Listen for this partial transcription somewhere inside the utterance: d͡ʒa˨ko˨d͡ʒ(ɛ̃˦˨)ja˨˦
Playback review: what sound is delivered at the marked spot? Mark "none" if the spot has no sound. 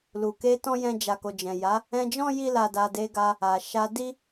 ɛ̃˨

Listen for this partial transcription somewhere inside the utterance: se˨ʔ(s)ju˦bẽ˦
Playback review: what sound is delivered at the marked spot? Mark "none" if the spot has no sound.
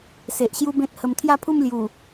ɕ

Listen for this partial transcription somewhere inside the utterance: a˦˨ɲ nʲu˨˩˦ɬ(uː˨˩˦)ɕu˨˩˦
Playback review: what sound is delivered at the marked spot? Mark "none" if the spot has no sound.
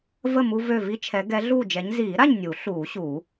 uː˨˩˦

